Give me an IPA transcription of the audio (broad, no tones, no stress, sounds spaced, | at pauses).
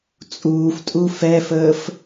t͡sʼ uː f tʼ u f ɛ f əː f